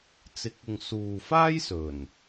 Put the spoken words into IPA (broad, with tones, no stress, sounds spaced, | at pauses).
t͡s ɪ˨˥ k̚ ʊ˨ ŋ s uː˨ f aː˥ j s ɵ˨˩ n